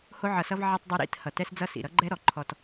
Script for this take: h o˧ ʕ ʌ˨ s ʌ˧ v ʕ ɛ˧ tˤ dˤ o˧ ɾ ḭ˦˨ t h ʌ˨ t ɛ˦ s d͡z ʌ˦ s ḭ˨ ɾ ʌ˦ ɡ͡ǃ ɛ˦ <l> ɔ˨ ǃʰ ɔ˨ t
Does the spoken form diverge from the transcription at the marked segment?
yes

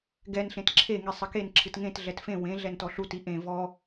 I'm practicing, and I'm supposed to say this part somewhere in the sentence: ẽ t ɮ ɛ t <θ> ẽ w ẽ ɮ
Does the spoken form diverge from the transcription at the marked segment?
yes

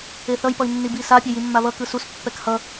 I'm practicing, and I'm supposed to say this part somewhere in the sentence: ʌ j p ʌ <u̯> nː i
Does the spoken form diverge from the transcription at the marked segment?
yes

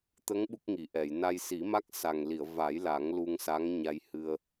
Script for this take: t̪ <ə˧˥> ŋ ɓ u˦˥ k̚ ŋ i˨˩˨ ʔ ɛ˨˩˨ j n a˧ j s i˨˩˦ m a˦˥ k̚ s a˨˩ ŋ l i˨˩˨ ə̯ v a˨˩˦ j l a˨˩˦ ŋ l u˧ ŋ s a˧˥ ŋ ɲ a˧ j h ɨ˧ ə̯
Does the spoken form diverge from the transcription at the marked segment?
no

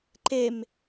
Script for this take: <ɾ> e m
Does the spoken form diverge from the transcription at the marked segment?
yes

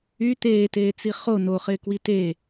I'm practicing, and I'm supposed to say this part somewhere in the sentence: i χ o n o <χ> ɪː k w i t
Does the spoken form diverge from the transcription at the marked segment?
no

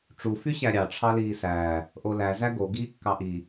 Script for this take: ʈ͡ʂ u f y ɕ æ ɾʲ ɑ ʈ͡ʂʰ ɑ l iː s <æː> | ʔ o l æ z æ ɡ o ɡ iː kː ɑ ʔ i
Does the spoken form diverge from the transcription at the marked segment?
no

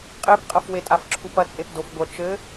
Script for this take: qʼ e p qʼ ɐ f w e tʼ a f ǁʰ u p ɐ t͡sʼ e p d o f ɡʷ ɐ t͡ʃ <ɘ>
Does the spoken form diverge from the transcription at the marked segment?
no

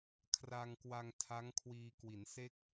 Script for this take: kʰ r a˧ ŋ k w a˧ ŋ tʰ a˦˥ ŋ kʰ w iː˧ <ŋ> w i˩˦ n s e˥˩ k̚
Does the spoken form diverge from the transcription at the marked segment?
yes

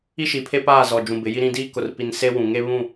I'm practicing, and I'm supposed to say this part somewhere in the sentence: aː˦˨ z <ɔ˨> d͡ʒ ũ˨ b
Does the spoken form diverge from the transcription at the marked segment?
no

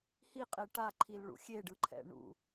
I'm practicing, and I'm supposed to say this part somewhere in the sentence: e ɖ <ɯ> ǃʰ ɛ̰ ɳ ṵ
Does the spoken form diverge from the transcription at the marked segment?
no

